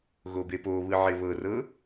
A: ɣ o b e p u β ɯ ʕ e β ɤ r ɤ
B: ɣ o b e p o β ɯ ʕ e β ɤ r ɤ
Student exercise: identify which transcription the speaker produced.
B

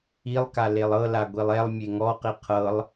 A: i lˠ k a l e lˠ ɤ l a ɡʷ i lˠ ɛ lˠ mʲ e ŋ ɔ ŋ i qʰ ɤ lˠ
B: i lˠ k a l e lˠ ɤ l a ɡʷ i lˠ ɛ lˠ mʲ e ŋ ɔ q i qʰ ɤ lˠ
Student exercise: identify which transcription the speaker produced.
B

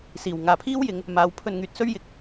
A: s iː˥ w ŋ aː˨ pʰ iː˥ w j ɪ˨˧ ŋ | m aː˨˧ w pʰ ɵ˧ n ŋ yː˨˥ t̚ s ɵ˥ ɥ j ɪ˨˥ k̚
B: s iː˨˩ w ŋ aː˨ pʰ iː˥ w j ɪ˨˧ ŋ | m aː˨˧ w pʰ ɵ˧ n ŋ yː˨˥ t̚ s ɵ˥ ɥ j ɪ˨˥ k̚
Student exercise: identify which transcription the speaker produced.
B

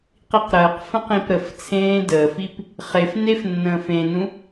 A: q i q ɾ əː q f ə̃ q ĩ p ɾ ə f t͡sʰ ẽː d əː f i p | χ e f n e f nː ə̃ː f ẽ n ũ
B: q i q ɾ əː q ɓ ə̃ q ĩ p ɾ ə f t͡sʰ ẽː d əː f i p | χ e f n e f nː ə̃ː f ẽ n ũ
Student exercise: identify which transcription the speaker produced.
A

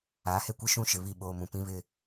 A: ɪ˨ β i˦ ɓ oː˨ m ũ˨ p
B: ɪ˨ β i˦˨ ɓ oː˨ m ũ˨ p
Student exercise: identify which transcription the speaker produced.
B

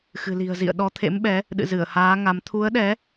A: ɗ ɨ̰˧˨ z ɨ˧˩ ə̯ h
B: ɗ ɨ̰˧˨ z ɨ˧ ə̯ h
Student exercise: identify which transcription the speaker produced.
A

